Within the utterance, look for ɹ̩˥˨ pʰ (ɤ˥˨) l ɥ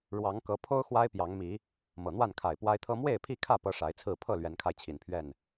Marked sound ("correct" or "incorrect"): correct